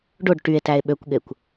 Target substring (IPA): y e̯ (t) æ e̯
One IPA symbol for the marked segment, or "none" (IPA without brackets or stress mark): t